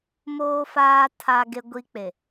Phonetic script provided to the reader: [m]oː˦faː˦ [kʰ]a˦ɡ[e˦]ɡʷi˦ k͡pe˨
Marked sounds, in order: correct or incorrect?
correct, incorrect: tʰ, correct

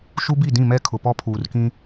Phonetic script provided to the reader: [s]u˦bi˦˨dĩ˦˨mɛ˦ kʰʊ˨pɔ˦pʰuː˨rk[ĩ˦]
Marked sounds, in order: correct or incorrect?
incorrect: ʃ, correct

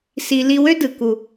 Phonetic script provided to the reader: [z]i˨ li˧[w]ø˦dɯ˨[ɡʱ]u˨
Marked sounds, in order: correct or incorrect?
incorrect: s, correct, incorrect: k

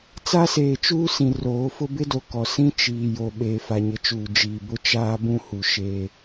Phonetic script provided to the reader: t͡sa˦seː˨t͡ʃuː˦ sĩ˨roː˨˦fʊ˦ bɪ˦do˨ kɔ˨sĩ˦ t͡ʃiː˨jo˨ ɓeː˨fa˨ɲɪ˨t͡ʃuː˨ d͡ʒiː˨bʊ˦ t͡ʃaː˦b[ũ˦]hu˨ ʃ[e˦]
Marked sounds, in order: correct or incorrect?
correct, correct

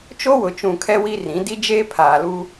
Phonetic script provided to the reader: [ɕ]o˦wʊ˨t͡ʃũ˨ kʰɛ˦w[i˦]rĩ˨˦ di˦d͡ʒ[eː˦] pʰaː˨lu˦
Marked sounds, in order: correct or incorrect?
incorrect: t͡ʃ, correct, correct

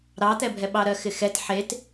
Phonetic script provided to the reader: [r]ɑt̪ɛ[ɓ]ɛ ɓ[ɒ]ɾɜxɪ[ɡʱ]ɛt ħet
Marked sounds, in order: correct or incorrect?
incorrect: ɾ, incorrect: bʱ, incorrect: ɑ, incorrect: x

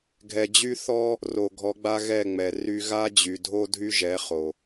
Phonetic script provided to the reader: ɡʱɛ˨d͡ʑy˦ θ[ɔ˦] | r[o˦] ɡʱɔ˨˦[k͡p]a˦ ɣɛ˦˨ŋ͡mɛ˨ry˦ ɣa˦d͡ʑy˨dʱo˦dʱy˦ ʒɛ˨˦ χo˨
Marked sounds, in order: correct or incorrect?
correct, incorrect: o˨, incorrect: ɡ͡b

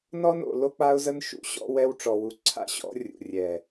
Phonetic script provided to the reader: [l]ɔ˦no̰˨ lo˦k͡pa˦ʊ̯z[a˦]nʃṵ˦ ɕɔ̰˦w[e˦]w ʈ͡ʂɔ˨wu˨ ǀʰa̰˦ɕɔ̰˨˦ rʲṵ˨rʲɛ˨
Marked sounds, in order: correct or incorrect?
incorrect: n, incorrect: ə˦, incorrect: ɛ˦

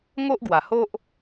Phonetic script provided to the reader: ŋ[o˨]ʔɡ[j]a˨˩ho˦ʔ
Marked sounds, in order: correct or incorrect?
incorrect: o˦, incorrect: w

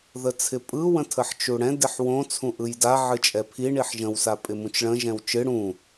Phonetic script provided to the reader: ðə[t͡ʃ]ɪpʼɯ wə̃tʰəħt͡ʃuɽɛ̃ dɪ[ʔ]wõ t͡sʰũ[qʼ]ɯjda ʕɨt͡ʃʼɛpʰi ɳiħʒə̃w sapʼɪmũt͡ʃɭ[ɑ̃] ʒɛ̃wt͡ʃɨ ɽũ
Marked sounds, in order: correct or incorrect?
incorrect: t͡sʰ, incorrect: ħ, incorrect: ʔ, incorrect: ə̃

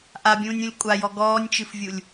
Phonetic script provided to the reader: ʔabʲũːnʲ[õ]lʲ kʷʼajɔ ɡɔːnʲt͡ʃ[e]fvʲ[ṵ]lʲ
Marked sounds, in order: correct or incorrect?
incorrect: ũ, incorrect: ɨ, incorrect: u

